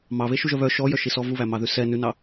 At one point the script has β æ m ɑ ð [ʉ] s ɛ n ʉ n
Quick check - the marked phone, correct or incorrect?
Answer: correct